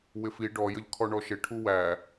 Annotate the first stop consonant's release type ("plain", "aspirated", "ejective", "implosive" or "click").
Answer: plain